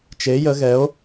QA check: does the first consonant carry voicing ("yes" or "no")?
no